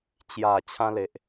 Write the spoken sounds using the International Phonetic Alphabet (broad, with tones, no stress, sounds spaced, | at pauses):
t͡ɕ j a˨˩ t͡ɕʰ ã˦ l e˨ ʔ